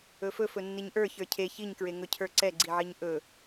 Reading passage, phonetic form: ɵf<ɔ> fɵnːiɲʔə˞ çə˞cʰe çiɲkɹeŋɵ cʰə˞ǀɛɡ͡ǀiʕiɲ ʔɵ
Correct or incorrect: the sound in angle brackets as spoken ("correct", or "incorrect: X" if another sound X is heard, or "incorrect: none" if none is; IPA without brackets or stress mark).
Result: incorrect: ɵ